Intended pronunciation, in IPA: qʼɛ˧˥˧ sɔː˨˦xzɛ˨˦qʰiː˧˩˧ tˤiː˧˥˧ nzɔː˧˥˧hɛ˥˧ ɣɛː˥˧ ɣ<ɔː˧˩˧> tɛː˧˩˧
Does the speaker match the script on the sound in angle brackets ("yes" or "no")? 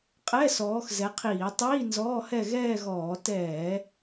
yes